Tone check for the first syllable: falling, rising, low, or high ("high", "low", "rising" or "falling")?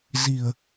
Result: low